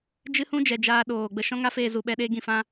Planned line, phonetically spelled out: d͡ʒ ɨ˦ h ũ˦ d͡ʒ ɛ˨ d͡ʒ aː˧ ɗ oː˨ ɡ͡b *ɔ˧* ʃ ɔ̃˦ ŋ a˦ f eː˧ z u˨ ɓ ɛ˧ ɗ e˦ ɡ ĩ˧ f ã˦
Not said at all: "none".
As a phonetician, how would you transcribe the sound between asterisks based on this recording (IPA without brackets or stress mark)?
ə˧